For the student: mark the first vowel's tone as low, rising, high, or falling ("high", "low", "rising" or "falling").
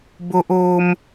high